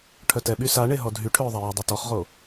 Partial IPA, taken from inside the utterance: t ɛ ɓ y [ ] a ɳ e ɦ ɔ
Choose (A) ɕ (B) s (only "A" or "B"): B